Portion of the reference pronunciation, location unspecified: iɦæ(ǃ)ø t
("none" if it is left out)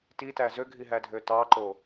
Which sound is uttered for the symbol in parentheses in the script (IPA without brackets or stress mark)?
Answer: dʱ